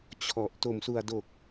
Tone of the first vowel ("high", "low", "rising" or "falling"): low